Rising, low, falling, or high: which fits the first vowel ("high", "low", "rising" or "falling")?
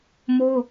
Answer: high